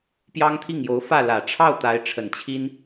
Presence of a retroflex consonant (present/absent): present